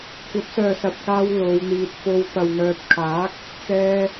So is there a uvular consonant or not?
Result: no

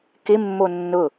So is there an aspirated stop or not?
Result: no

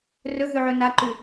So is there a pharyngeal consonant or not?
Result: yes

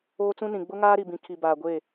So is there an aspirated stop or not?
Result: yes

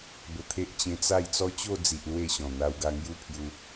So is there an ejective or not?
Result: no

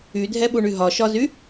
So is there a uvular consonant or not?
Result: no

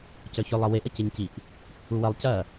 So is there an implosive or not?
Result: no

